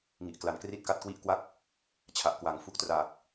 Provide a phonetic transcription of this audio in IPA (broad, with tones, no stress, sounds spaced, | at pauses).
ŋ i˨˩ ʔ k l a˨˩ n k r i˥˩ t̚ k a˦˥ t̚ k w i˦˥ ʔ k w a˦˥ k̚ | t͡ɕʰ a˨˩ ʔ k w a˩˦ ŋ f u˦˥ k̚ t r aː˨˩ k̚